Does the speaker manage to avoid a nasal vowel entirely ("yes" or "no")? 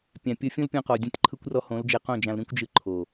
no